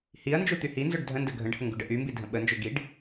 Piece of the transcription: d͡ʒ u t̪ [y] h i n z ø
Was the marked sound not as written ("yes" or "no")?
no